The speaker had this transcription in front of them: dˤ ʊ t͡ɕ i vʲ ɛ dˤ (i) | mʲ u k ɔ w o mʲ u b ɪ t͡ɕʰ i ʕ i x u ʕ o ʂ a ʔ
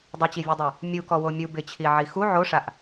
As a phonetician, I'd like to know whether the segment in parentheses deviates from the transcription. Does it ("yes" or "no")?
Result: yes